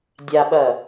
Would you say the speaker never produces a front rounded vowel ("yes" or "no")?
yes